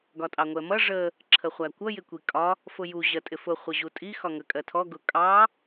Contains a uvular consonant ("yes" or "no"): yes